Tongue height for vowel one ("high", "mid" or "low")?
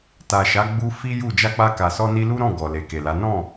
low